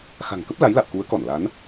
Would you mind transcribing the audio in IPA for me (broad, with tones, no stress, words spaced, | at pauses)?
xa̤˨˩ŋkə˦˥p̚ la˨˦jla̰˧˨wku˨˦ə̯kɔ˧˩n la˨˦n